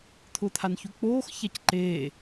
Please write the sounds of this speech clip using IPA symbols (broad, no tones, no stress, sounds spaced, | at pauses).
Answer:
t̪ʰ ʊː t̪ʰ a n ç u k͡p oː x ç a c ǃ eː